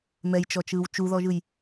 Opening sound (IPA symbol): m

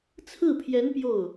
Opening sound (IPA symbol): t͡sʰ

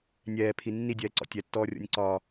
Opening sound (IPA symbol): nʲ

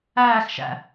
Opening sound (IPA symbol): æː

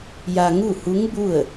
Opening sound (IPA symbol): j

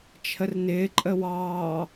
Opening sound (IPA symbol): t͡ʃʰ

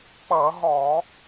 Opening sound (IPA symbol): k͡p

